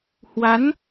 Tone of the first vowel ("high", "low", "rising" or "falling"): rising